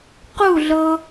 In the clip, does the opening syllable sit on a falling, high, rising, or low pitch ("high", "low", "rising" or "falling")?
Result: falling